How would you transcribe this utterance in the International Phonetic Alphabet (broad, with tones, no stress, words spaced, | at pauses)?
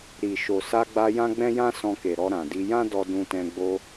ɾi˨ ʃo˨sa˧ɡ͡ba˧ jã˦ɡ͡bɛ̃˦jã˦ sɔ̃˧ke˨ɾɔ˧ ɾã˨di˧ jã˦ dɔ˧dũ˧tɛ̃˧ ɡ͡bo˧